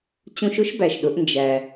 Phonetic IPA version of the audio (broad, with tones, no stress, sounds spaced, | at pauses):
t͡ɕ ũ˧ ʃ ʊ˧˥ ʃ b æ˩ ʃ ɗ ʊ˩˧ ʔ n d͡ʒ æ˩